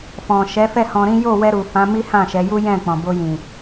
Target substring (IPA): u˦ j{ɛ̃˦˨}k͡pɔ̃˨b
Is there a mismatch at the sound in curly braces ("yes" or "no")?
no